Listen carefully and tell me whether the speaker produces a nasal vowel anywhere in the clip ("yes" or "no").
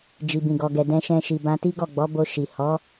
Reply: yes